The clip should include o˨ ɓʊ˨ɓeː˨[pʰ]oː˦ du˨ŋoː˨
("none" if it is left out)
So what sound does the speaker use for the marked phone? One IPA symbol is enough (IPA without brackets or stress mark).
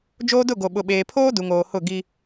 pʰ